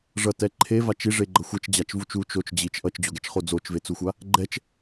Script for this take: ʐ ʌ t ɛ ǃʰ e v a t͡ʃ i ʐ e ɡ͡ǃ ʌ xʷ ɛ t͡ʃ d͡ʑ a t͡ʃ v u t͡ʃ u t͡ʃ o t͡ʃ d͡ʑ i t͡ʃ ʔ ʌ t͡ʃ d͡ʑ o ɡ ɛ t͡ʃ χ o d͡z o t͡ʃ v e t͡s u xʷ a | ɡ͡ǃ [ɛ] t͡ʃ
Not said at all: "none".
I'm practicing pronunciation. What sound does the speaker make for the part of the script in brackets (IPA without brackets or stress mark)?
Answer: ɛ